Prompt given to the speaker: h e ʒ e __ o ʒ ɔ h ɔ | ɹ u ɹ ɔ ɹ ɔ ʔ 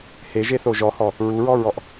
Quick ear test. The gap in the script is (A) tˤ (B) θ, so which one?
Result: B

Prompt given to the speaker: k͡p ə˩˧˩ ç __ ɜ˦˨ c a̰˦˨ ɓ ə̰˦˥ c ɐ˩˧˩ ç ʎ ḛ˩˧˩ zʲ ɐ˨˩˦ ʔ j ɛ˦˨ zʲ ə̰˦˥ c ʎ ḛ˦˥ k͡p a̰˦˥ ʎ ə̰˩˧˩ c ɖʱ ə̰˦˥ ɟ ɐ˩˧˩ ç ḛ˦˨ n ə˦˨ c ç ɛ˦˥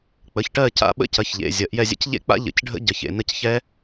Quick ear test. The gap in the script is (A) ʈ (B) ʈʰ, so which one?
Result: A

